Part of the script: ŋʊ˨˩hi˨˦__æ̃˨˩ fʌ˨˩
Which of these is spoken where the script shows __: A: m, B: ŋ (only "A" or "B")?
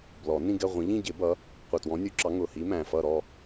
A